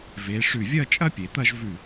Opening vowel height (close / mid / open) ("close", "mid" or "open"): mid